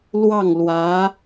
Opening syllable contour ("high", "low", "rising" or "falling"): falling